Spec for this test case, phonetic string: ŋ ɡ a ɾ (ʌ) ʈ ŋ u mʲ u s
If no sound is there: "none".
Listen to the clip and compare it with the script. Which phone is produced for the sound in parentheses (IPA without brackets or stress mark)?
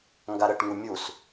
ə